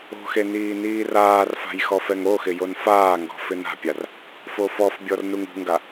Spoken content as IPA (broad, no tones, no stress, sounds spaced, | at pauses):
o̤ x e n iː n iː r aː r f a̤ j x ɔ f ɛ ŋ o x ɪ j o n f aː ŋ ɡ ɔ̤ f ɪ n a̤ pʲ a r | f o f ɔ f bʲ ɔ r n u ŋ ṳ ŋ ɡ a